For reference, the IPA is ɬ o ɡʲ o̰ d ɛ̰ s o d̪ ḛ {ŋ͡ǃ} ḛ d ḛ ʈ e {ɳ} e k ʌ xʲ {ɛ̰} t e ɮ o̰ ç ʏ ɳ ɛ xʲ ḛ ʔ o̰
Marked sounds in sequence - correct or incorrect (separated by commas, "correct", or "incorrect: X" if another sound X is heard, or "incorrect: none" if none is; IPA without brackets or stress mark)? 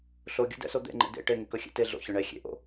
correct, incorrect: ŋ, correct